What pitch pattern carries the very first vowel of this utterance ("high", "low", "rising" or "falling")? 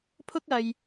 high